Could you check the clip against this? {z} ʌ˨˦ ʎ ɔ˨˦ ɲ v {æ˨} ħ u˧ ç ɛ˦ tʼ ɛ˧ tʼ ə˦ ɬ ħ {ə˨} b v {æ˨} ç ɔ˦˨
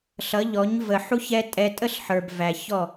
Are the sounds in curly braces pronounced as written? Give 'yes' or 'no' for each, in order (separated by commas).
no, no, no, yes